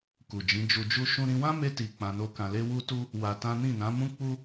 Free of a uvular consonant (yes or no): yes